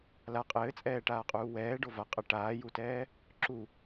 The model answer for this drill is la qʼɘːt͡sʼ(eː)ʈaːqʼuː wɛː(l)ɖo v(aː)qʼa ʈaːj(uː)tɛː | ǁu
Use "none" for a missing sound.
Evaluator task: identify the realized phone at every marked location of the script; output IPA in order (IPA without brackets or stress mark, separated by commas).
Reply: ɛː, none, a, u